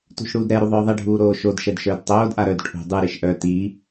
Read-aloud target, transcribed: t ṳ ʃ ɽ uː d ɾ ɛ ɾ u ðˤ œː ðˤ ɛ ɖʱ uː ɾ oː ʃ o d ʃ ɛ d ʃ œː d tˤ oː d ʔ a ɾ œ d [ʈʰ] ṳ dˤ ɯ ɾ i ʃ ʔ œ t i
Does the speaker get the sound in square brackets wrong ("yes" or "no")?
no